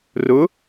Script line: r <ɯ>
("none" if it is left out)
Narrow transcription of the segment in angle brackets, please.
ʊ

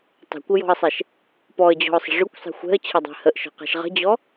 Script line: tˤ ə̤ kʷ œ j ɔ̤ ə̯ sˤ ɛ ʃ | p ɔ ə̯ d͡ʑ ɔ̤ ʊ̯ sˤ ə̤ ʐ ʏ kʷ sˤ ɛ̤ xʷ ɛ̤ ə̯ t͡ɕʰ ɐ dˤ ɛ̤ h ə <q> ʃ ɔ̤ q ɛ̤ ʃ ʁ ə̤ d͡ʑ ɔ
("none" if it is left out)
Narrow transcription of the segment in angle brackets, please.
ʔ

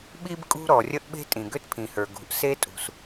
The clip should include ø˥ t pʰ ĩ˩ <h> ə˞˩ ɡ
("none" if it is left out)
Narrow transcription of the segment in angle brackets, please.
h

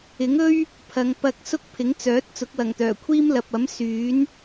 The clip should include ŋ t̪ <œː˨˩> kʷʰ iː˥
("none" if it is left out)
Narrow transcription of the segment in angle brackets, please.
œː˨˩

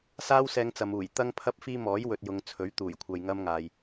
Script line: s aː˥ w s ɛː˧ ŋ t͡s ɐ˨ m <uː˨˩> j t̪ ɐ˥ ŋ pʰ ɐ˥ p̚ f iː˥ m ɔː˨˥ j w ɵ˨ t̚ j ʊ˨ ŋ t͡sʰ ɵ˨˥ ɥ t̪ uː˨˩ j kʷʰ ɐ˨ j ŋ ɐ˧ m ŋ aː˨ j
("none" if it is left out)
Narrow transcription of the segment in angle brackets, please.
uː˨˩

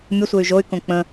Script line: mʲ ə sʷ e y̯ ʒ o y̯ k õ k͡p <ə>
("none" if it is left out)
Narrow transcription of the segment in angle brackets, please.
ə̃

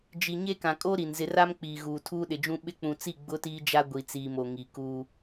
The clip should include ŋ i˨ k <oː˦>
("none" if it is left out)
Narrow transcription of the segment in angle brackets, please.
uː˦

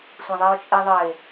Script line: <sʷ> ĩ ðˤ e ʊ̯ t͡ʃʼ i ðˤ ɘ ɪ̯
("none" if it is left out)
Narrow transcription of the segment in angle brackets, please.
sʷ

